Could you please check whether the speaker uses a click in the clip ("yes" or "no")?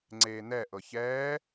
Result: yes